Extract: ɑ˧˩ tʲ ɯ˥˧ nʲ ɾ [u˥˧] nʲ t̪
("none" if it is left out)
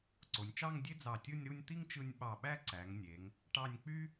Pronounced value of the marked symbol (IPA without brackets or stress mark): u˥˧